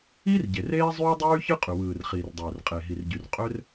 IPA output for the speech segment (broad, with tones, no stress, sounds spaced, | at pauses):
i˥ r ɟ e˩ r eː˥ zˤ yː˥ dˤ yː˥ ç ɯ˥ qʼ y˩ w ɯː˩ r χ iː˩ r dˤ øː˩ r qʼ e˩ ɦ i˩ r ɟ y˩ r qʼ ø˥ r